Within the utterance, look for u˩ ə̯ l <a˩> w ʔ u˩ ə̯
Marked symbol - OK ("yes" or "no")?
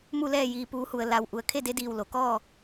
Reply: yes